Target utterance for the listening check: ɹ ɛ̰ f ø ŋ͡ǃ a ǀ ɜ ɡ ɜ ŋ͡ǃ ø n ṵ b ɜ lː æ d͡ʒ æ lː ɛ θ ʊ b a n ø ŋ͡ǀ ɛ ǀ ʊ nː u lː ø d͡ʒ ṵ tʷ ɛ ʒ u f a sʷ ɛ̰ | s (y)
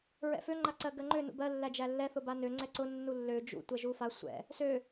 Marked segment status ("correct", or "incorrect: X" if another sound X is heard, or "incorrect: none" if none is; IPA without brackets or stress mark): incorrect: ø